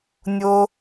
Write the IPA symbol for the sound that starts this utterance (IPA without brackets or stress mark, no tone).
nʲ